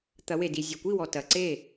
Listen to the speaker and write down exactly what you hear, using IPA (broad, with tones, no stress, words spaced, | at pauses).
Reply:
t̪ɐ˩˧we˩di˩ zʲɔ˩kʷi˥˩wɔ˩ tɐ˩˧ǀe˥˩